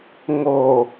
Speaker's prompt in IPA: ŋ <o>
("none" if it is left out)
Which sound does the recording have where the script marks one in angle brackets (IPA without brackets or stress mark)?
o